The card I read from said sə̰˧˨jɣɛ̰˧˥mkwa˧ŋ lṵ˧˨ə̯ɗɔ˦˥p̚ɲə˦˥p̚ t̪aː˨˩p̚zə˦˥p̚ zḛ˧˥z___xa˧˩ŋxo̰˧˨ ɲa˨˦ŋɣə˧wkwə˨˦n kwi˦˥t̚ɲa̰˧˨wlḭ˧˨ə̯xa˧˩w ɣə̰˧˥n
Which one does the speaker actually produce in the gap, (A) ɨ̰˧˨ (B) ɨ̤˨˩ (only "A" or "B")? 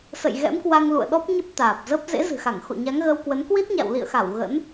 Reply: B